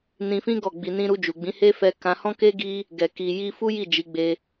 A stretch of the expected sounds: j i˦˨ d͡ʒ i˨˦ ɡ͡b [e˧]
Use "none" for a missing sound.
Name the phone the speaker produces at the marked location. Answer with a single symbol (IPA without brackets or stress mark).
e˧